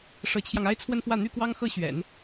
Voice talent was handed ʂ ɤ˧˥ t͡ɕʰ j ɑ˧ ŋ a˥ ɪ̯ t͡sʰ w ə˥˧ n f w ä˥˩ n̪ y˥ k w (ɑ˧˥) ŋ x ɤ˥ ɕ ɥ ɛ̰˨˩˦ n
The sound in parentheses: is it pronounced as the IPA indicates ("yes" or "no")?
no